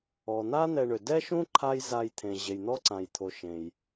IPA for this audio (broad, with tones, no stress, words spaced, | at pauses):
ɔ˩n̪a˥ n̪ɛ˨ɳø˩dɛ˥ʃũ˥ ǃʰa˦j za˨jt̪ʰẽ˩ ʑe˩jn̪ɔ˦ǀã˩jt̪ʰo˩ ʃẽ˩j